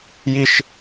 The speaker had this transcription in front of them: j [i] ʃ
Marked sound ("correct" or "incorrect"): correct